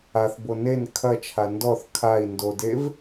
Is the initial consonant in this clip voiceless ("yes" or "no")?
yes